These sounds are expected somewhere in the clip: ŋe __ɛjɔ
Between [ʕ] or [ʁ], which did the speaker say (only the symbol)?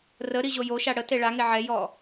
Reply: ʕ